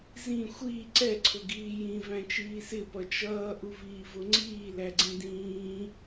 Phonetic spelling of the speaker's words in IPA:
z ĩ xʷ i ǀ ɛ ǀʰ ʊ ɡ iː j ĩ v æ̃ t͡ʃ iː s ɪ p ʌ t͡ʃ ʌː ʔ u v iː v ʊ ŋ͡ǀ iː l æ ɡ͡ǀ ĩ d ĩː

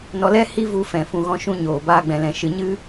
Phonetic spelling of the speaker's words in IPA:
n ɔ˧ l ɛ˦ h i˦ v u˧ f ɛ̃˨ f ũ˨ ɣ ɔ̃˧ ʃ ũ˧ ɲ oː˨ b aː˧ ɡ͡b ɛ̃˨ l ɛ̃˨ ʃ ɨ˨ ɲ ɨ˦

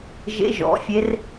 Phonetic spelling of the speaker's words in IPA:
ʒ ḛ˦˥ ʒ ɔ̰˩˥ fʲ e˦˥ r

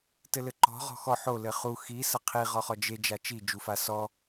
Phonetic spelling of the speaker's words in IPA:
t ɘ l ɘ ǃ ɔ̤ ʁ ɔ̤ x ɔ ħ o l ɘ χ u x i s ɐ qʰ i ʁ ɔ χ ɔ d͡ʒ e d͡ʒ a t͡ʃ i d͡ʒ u f a s ɔ

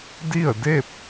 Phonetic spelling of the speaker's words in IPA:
d i˥˨ ə̯ d e˥˨ p̚

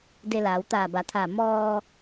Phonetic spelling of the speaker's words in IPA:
d e˧ l aː˩˧ w t̪ aː˧˩ b a˩˧ t̪ʰ aː˧˩ m ɔː˧

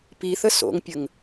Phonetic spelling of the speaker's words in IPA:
p i θ ə s o̰ ŋ pʲ ə ŋ

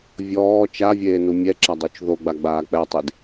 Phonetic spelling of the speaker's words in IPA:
vʲ ɔː t͡ʃ a vʲ eː n u mʲ ɛ ǁ a dˤ u t͡ʃ ð o ɡ͡b a ɡ͡b aː k͡p ɛ tˤ i d

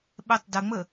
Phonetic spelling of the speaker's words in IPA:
ɓ ɛ tˤ d ə ŋ͡m ə

